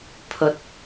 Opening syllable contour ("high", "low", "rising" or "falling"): low